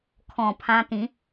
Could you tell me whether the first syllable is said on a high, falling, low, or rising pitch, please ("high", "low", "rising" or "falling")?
low